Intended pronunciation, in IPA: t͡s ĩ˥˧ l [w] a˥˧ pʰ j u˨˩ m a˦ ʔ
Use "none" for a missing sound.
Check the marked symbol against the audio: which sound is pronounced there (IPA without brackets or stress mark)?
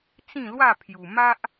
w